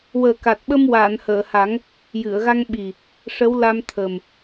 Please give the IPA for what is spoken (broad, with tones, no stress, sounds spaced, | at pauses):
w əː˨˩ k a˨˩ t̚ ɓ ə˧ m w aː˨˩˨ n h əː˨˩˨ h a˨˩˦ ŋ | j ɨ˨˩˨ ə̯ ɣ a˧ ŋ ɓ i˨˩ | ʂ ə˧˥ w l a˧ m t̪ʰ ə˨˩ m